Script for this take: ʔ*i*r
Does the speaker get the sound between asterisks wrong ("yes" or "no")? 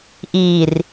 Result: no